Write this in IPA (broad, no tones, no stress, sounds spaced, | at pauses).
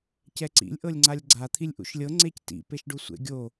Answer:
c ɛ ǀ ḭ lʲ ʔ ɤ lʲ ŋ͡ǀ a lʲ ɡ͡ǀ a t̪ʰ i lʲ ʔ ṵ ʃ lʲ ɤ ŋ͡ǀ e c t ḭ p e ʃ ɖ u sʷ ḛ ɡʲ o